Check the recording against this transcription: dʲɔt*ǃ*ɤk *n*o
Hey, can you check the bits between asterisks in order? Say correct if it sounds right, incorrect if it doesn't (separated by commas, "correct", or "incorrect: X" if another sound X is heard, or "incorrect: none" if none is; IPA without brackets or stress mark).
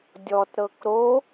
incorrect: ɾ, incorrect: ɾ